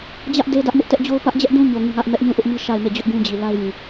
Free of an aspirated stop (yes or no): yes